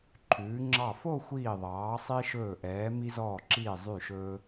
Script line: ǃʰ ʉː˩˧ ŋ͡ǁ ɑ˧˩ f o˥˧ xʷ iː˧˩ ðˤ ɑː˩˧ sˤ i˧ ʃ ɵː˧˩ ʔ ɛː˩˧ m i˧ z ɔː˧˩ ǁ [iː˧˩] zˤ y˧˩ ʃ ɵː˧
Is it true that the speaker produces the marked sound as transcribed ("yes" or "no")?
yes